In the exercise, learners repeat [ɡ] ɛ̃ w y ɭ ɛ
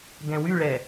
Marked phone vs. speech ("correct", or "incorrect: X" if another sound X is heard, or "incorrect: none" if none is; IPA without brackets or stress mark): correct